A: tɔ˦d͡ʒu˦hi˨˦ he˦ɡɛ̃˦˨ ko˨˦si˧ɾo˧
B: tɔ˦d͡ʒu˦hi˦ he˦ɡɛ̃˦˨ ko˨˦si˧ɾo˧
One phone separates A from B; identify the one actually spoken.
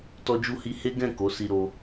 B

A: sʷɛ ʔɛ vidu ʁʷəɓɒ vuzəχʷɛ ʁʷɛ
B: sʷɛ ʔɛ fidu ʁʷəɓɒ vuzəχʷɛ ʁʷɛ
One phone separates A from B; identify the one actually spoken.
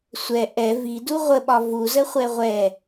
A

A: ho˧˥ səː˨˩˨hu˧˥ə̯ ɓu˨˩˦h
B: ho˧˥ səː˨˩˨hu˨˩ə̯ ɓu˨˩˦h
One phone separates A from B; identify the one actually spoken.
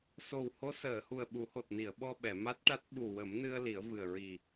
B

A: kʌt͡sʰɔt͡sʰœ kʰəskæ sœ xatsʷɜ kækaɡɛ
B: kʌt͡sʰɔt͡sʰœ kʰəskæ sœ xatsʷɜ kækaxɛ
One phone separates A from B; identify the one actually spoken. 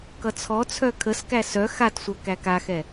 B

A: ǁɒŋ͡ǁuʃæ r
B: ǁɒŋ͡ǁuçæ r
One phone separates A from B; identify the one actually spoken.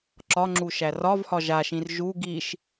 A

